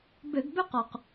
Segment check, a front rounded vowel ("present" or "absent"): present